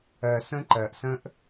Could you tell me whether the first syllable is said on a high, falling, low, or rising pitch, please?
low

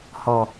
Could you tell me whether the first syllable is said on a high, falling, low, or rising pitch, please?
low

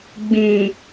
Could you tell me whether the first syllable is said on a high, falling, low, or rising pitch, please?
low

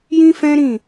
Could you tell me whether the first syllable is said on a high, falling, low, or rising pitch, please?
high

